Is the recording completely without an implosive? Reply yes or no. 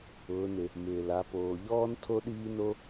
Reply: no